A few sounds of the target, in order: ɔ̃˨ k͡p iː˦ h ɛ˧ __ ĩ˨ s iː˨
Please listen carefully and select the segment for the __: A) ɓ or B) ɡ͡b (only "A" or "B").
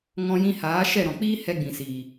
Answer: B